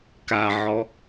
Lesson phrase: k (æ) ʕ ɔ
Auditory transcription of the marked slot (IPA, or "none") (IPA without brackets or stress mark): a